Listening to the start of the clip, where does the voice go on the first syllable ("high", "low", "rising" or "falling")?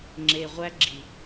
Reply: low